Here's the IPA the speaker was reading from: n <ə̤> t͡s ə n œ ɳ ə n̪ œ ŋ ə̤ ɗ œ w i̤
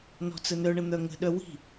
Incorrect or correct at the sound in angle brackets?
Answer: incorrect: ɔ̤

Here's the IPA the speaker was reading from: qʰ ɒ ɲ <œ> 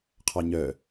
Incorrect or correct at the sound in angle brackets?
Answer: correct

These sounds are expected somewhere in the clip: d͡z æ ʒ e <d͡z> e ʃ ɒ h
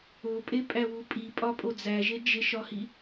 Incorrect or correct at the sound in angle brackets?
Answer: incorrect: d͡ʒ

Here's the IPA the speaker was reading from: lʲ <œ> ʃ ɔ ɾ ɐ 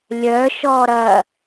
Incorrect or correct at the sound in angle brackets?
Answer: correct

